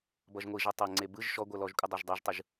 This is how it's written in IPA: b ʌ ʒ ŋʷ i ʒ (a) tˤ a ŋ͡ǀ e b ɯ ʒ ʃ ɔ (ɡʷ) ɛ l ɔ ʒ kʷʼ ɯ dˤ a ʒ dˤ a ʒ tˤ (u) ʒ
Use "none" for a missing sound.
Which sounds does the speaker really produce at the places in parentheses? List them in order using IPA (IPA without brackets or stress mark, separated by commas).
ʌ, ɡʷ, ɯ